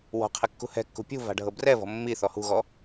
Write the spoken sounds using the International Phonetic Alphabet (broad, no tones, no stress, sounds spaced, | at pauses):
w ɔ̤ qʰ e kː ṳ h ɛ̤ kː ṳ pʲ ṳ v a̤ ɖʱ ɤ b r ɛ v ɔ̤ mː i θ ɔ h ṳ ɣ ɔ